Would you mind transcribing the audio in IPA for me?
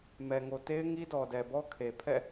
m ɛ˨ ŋ o˨ t e˦ ɪ̯ ŋ i˦ d ɔ˨ d ɛ˨ b ɔ˦ kʰ e˨ pʰ ɛ̰˦˨

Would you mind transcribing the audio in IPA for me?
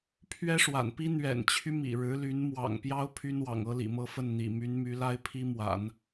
pʰ ɥ ɛ˥ ʂ w a̰˨˩ n p i˥ n̪ ɥ ɛ̰˨˩ n t͡ɕʰ y˦ m ḭ˨˩ ɻ ɻ̩˧˥ l y˧˥ n m w ɑ̰˨˩ ŋ p j ɑ˥ ʊ̯ pʰ y˥ n w ɑ̰˨˩ ŋ ɤ˥ l ḭ˨˩ m ɤ˥˧ f ə˥˩ n n̪ ḭ˨˩ m y˧˥ n m y˧˥ l a˥ ɪ̯ pʰ i˥ m w a̰˨˩˦ n

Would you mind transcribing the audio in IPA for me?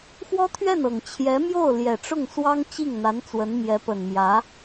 x w ɔ˥ t̪ʰ ɥ ɛ˥˩ n ɤ˨˩ ŋ t͡ɕʰ j ɛ˧˥ m j o˥˩ ʊ̯ l j ɛ˨˩ ʈ͡ʂ ʊ˥˩ ŋ s w ɑ˥ ŋ t͡ɕ i˥˩ ŋ n̪ a˧˥ n t͡s w ə˧˥ n m j ɛ˧˥ p ə˨˩ n m j ä˧˥

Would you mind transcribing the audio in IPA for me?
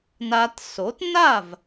n a˧ t s o˩˥ t n a˥˩ v

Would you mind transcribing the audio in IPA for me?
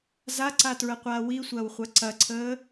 z a ǀ a t ɹ ə qʷ aː w i sʷ ɐː w χʷ ɐ ǀ ɐ ǀʰ əː

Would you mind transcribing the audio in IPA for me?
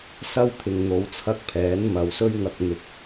s ɐ˥ w t̪ʰ ɪ˨ ŋ n̪ o˨˧ w t͡sʰ ɐ˧ k̚ pʰ ɛː˨˥ n m ɐ˨ w s ɵ˥ ɥ ŋ ɐ˨ k̚ n̪ ɪ˨ k̚

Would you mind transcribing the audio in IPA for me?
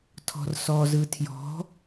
tʰ ɔ̤ r s ɔ z ɯ tʰ j ɔ̤

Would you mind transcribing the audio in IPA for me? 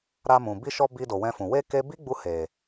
ɾ a˧ m ũ˨ b i˧ ʃ ɔ˧ b i˧ d o˨ w ɛ̃˧ f ũ˨ w e˧ k e˦ b i˦ ɡ͡b u˧ h e˨

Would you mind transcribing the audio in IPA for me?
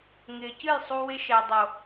ŋ ɪː˨ c ɨ˦˨ j sˤ u˧ w ɪ˦ ʃ ɛ˨ dˤ o˨

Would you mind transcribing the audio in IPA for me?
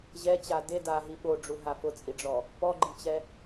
ʑ ɛ t͡ɕ a d e d a ɦ i ɓ o ɖ͡ʐ u ɦ a f ʊ t͡sʼ i ɖ͡ʐ ɔ | p ɔ ɡ͡ǃ i t͡ɕ ɛ

